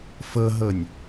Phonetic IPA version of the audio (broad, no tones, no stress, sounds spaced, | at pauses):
f ɤ ɦ ɤ nʲ